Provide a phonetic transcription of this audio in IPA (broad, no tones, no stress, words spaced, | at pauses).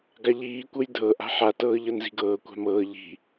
ɡaʎiːkʷɤj dʱɤ ʔa̤ħatɤː ʎɤnzi̤ɡɤːkʷa̤ mɤː ʎi̤